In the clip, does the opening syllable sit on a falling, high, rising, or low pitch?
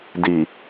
low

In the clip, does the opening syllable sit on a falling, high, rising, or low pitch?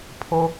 high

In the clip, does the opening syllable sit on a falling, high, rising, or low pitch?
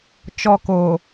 low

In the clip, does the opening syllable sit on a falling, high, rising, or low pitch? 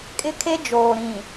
high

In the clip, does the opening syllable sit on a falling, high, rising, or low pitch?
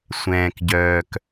low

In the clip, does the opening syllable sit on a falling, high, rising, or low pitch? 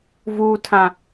low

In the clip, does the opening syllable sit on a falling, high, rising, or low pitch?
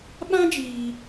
high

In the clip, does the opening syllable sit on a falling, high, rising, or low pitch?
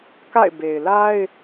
falling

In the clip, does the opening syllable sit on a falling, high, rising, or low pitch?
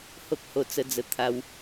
high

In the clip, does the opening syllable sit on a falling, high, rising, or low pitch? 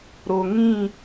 low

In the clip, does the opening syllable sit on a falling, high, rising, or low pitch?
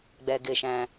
low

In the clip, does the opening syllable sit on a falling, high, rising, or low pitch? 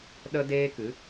high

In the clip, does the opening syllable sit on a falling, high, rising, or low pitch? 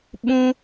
high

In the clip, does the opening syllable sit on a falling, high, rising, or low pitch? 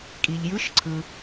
low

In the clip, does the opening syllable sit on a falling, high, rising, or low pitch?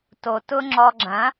low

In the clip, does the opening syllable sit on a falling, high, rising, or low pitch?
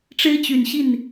high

